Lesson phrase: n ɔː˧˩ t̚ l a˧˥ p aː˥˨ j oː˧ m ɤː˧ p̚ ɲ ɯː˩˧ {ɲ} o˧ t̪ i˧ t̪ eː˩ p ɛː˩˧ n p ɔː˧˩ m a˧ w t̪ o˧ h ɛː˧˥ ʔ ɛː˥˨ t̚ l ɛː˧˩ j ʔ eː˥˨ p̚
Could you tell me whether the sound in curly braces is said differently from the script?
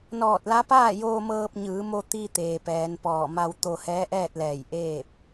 yes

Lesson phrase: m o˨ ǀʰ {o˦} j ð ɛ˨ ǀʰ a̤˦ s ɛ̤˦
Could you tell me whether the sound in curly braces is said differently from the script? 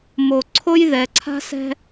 no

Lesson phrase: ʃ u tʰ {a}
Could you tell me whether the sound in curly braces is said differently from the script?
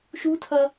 yes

